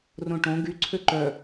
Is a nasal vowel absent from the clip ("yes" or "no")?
no